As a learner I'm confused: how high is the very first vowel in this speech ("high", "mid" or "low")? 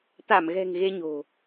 low